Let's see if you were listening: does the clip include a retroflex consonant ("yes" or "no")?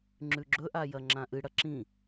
yes